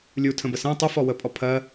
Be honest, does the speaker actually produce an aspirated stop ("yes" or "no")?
yes